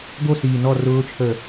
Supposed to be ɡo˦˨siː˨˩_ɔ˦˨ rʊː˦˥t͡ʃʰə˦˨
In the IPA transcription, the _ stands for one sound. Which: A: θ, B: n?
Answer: B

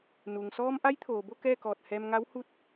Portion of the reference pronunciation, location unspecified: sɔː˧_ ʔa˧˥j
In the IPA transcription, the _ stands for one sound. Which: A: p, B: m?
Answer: B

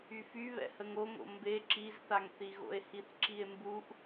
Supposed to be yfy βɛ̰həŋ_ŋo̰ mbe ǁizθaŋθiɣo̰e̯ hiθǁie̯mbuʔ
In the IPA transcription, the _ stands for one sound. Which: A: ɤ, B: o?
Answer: B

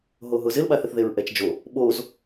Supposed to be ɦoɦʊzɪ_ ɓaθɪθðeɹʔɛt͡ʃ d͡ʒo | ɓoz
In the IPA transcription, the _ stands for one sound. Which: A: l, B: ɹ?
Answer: A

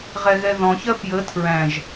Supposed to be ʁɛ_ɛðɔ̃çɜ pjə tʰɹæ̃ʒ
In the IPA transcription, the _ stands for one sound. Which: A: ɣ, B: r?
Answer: A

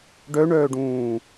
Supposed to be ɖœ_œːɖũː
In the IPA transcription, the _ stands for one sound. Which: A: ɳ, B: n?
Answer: A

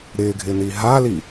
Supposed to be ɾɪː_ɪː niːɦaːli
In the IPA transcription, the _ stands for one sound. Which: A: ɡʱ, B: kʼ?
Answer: A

